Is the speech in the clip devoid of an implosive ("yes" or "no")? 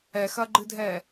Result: yes